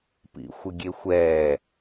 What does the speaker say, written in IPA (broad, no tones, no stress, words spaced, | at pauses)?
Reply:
pḭxʷɪɡʲexʷɛː